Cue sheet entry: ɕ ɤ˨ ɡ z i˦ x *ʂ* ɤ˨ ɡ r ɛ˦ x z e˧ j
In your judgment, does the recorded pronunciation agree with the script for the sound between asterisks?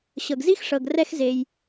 yes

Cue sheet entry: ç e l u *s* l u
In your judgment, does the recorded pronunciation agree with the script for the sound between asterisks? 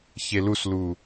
yes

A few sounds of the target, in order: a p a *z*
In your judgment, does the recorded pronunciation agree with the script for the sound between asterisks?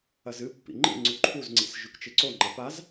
yes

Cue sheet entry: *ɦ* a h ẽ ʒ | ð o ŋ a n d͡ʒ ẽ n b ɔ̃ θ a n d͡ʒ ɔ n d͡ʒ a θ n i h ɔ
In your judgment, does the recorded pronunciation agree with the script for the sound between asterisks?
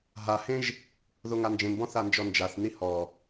yes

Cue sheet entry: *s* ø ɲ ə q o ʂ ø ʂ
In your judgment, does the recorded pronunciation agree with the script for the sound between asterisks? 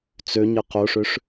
no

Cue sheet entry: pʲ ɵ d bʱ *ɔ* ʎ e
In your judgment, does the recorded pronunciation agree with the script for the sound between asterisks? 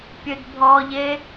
yes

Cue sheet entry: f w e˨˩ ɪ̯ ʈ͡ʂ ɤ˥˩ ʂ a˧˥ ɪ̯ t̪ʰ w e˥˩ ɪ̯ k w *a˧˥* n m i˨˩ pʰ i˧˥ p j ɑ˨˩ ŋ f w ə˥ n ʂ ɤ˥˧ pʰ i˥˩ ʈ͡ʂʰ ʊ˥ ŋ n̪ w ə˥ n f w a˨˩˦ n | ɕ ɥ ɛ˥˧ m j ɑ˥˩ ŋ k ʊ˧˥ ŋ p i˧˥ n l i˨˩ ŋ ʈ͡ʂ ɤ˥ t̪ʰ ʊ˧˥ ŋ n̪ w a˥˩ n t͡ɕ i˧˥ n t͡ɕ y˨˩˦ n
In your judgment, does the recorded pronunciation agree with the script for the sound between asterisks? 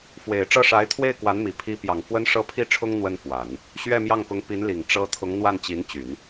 yes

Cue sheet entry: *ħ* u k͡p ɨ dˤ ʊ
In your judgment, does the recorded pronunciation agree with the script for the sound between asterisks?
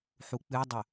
yes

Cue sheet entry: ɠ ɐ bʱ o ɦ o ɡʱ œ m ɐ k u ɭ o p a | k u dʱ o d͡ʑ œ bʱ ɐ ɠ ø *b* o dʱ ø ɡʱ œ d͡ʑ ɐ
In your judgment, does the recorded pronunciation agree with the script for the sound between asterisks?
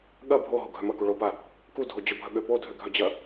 no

